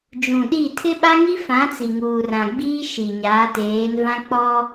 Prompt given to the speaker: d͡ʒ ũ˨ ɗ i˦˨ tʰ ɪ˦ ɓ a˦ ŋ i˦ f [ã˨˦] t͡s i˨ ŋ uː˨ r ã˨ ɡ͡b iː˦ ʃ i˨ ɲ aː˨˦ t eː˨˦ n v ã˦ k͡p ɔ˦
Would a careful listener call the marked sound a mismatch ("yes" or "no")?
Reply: no